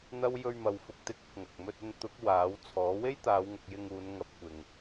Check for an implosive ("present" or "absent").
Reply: absent